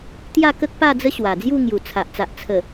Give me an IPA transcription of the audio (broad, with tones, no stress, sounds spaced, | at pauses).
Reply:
t̪ j a˥˧ k ə˦ k̚ p a˥˧ d͡z ə˦ ɕ w a˨˩ d͡z j u˥˧ ŋ j u˨˩ t͡sʰ a˨ ʔ t͡s a˨ ʔ t͡sʰ ə˨˩